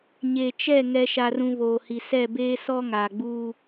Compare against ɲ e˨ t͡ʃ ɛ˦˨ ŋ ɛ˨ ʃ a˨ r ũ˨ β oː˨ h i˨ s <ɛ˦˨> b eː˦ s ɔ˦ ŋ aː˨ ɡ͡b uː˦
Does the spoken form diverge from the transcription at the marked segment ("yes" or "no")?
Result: no